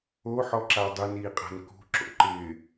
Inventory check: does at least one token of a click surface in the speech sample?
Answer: yes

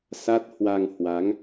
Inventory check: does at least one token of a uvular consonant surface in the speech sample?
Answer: no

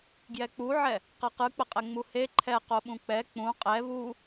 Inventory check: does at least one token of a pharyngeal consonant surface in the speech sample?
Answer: yes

